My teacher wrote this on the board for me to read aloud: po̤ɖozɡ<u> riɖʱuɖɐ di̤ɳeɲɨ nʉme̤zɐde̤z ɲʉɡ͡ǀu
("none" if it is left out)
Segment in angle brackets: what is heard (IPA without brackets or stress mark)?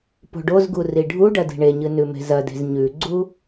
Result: u